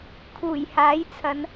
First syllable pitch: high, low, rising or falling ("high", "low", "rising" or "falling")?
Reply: low